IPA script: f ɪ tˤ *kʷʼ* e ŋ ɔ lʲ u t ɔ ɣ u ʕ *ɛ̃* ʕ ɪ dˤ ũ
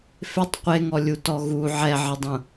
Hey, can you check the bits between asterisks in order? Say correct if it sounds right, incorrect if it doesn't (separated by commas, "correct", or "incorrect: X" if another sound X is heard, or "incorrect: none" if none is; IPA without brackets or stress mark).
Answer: incorrect: qʷ, incorrect: ɛ